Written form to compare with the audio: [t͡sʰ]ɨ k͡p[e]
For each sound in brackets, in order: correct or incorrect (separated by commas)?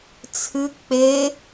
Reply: correct, correct